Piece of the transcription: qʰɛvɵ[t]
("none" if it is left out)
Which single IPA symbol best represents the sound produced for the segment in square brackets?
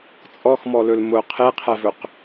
q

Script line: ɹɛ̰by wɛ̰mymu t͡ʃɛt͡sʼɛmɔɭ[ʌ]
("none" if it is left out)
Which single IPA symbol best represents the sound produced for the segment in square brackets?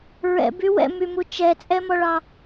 ɑ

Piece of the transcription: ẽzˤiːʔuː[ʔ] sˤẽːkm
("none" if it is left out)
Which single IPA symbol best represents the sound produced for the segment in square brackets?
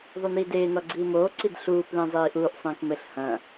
ʔ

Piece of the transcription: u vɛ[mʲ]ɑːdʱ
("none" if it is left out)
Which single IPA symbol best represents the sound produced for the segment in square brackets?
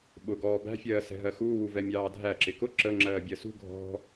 mʲ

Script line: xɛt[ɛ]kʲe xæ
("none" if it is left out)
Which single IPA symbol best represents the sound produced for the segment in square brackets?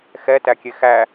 æ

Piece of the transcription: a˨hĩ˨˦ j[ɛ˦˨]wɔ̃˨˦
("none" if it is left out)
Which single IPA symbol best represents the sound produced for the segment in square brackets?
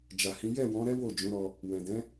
ɛ˦˨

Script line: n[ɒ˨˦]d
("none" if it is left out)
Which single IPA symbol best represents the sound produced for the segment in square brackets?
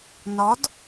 ɒ˨˦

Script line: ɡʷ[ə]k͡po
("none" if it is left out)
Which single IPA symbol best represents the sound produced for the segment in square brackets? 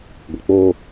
ə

